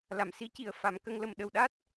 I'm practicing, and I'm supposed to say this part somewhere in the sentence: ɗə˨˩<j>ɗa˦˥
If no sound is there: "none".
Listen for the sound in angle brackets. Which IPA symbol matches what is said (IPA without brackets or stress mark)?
w